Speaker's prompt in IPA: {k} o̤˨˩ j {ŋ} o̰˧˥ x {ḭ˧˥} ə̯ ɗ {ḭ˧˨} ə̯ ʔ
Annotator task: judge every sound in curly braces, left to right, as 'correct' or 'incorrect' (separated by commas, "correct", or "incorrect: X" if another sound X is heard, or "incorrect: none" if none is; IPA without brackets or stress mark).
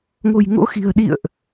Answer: incorrect: ŋ, correct, incorrect: i̤˨˩, correct